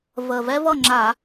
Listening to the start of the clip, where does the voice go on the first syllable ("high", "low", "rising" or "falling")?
low